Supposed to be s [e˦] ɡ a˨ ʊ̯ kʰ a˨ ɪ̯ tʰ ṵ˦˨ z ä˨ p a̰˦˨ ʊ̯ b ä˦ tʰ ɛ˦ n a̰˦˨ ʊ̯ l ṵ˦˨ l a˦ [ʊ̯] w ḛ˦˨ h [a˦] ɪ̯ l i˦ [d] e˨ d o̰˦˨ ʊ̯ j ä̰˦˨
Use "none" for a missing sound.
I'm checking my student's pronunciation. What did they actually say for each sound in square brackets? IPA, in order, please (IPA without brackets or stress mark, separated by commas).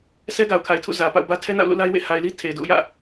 ɛ˦, ɪ̯, a˨, tʰ